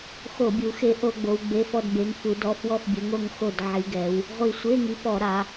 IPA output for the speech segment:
xo˧˩˧bʲu˩˧ xe˨˥ʔo˧˩˧ɡ͡bo˩˧w ɡ͡be˩˧˩fɔ˧˩dbe˩˧ŋfu˩˧ dɔ˩˧˩fwɔ˧˩fbʲɘ˩˧ŋo˧˩ŋ xo˧˩dʕi˩˧ɡɛ˩˧w | ʁʷi˧˩sʷe˧˥˧ŋi˨˥ pɔ˧˩˧ɾa˩˧

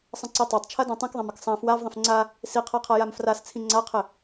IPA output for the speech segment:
sˤə̃ǀitˤatˤ t͡ʃʰadãtˤĩkðˤãm ɘksˤã fwavðˤə̃f ŋ͡ǀa | siqʰaqʰa jamfras t͡sʰĩŋ͡ǀaqʰɘ

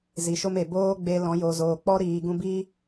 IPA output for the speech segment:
zi˨ʃo˦me˨ boː˦ɡ͡be˧lɔ̃˨˦ jo˨zoː˨k͡pɔ˦ ɾiː˨ɡũ˧bi˦

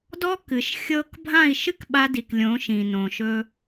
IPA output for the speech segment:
dɔ˦ kɨ˨ʃ xʲɤː˧kbʱã˦˨i̯ʃɨ˦k ɓa˧di˨k lʲõ˨˦ʃĩ˨nõ˨ʃɵː˧

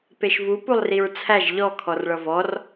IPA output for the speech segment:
peʃvu pulˠriɹt͡sʰæʒ ʎɔ kʰɔrɭʌvɔr

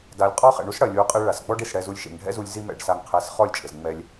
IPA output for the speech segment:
da˨lʲqʼɔ˦ χɛ̰˨ɳu˦s ɽɐ˨lʲ u˨˦qʼe˧ ɭa˨sɡ͡bɔ˦ɖ i˨sɽɛ˧zu˧lʲ ʃḛ˨ŋɖʱɛ̰˦zu˧lʲ zi˧mɛ̰˨ɖsa˨ŋqʰɛ˨s χɔ˦˨lʲt͡ʃʼɘ˨z ŋ͡mɛ˧lʲ

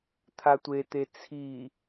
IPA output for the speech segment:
t̪ʰatʷet̪e t͡sʰi

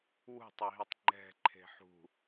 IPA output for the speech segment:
wṳtˤeɦitˤ ŋ͡ǃɛ̤ǃʰe̤ ħṳ

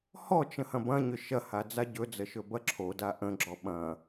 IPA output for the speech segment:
hɔt͡ʃə̃ hɐ̃bɐ̃ɲʏ ʃɐha d͡zaɟɵd͡zə ʃɵbɐǁʰoda ʔə̃ɡ͡ǁɔ ɓɐ̃

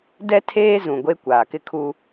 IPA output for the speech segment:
dɛ˦tʰeː˦zũ˨ ɡʷe˦ kʷaː˨kɪ˦kʰu˦

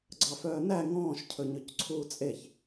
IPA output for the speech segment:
ɡ͡ǀɑfœːnæ ŋɔ̃ːʃ cʰɵɲɵcǀʰuːt͡sʼeç

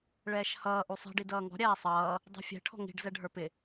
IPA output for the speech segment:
ɭɛːʃhʌː ʔusˤi̤ ɖidʌːŋɔ̤ ɾʲæːsˤʌː | dˤɛ̤fʲɛ̤ ʈʰɔ̤ŋi̤ɖ zɛɖʱə˞pɪ

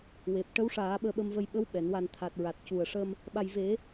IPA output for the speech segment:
we˨˩p̚ʈə˧˥wʂaː˨˩˦ ɓəː˧ɓə˧mvə˧j ɓə˧˥wɓɛ˨˩˨n wa˨˩n t̪ʰa˨˩t̚ɹa˨˩t̚ cu˨˩ə̯ʂə˧m | ɓa˨˩jve˨˩˦

